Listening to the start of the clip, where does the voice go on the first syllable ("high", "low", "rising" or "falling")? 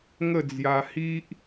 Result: falling